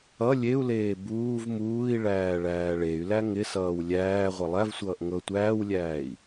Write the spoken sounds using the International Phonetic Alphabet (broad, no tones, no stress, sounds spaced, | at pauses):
ʌ lʲ e u̯ l eː b uː v m uː i̯ ɭ æː ɭ æː ɭ e y̯ l æ ŋ ɪ s ʌː w lʲ æː ʁʷ ʌ lˠ æ v sʷ ʌː ʔ ŋ ɤ tʷ æː w lʲ æː i̯